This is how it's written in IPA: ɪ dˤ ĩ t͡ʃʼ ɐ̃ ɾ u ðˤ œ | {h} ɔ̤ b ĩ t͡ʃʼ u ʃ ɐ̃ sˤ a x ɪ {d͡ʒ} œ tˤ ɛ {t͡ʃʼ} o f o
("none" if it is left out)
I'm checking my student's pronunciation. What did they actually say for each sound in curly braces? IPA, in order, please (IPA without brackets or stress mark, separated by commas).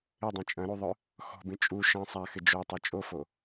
x, d͡ʒ, t͡ʃʼ